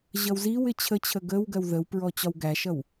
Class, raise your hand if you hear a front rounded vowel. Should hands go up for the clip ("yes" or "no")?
no